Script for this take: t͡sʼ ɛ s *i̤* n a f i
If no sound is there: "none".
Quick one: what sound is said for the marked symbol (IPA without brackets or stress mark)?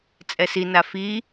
i